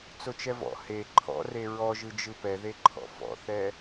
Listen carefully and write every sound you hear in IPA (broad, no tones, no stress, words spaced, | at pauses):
t͡sot͡ʃɛvɔ̰ he ǃʰɔ̰re ɹɔ ʒɯd͡ʒɯpɛ ðeǃʰɔ̰fɔ̰θɛ